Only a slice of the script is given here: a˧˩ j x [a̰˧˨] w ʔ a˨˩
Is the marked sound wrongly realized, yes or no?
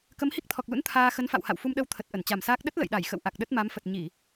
yes